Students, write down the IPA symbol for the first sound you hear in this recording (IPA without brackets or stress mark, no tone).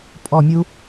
pʼ